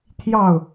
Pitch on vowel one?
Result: falling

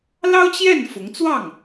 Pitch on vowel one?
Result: high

